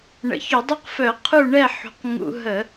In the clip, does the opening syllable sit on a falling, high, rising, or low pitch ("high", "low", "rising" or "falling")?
low